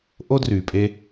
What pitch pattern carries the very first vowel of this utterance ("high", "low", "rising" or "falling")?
high